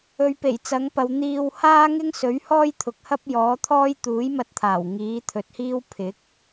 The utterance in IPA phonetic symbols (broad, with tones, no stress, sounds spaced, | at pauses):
ɵ˨˧ ɥ p e˨˩ j t͡s ɐ˨˥ ŋ p ɐ˨˧ w n̪ iː˧ w h aː˥ ŋ ɪ˥ ŋ s ɵ˨˥ ɥ h ɔː˥ j t̪ʰ ʊ˨˥ k̚ h ɐ˥ p̚ j ɔː˨˥ t̪ʰ ɔː˥ j t̪ uː˨˥ j m ɐ˧ t̚ t̪ʰ aː˨˩ w ŋ iː˨˥ t̪ʰ ɵ˨˥ t̚ h iː˥ w pʰ ɪ˨˥ k̚